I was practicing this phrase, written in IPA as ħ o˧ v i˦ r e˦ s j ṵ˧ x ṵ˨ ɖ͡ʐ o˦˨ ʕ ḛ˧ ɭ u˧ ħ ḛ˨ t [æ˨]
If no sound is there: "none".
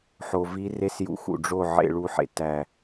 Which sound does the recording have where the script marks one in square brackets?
æ˨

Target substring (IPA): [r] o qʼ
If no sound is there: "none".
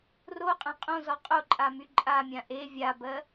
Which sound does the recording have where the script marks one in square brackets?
r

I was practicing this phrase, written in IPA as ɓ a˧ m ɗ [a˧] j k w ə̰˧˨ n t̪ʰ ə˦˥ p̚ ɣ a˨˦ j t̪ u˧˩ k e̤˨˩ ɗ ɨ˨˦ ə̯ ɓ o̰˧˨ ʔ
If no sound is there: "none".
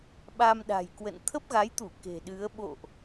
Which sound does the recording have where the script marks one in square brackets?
a̤˨˩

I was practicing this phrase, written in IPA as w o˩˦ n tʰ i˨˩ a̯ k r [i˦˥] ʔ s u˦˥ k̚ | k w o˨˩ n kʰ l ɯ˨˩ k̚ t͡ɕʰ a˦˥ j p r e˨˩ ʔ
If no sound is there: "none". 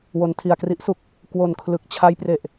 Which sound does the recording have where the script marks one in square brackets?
i˦˥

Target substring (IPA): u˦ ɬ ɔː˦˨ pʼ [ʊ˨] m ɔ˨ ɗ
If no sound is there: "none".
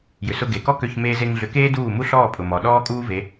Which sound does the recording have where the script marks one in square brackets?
ʊ˨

